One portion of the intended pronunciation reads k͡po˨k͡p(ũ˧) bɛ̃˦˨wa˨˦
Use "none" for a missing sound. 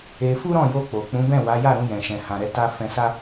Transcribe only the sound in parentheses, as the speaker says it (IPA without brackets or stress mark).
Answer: ũ˨˦